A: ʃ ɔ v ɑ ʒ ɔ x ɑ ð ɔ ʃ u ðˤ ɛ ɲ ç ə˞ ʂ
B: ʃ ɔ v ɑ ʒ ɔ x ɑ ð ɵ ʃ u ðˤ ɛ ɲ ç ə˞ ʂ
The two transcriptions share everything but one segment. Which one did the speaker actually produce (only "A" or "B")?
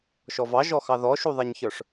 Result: A